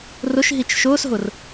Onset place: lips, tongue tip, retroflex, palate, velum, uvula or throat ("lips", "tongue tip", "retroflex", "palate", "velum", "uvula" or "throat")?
tongue tip